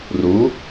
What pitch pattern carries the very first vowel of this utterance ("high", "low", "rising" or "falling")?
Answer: rising